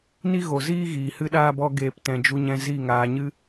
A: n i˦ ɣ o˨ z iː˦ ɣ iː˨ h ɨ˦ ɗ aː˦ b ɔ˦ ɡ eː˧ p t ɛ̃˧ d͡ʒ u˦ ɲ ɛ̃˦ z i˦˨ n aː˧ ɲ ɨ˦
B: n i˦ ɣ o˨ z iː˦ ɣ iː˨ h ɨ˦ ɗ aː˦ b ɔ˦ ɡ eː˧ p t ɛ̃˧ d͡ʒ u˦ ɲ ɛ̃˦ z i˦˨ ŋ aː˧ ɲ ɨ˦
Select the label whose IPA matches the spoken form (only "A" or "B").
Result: B